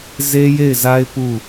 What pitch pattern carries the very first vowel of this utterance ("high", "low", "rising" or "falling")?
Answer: high